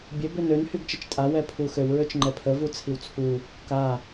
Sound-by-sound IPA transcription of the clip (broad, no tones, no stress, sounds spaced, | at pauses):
bʲ ø b ø n ø n h y ɡ t͡ʃ ə t͡ʃ tʼ a w ɛ pʰ u x ø w ɹ ø t͡ʃ ŋ͡ǃ ɛ pʰ ə v u t͡sʰ i w t͡sʰ u | k a